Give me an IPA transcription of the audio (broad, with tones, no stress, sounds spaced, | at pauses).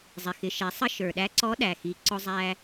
zˤ i˩ x ɪ˩˧ ʃ ɛ˩˧ sˤ ə˧ ʃ ə˞˩ ɗ æ˧˥ ǀ ɔ˧˥ ɗ æ˩ x i˩˧ ǀ ʊ˧ zˤ æ˧